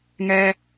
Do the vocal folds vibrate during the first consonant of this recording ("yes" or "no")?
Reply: yes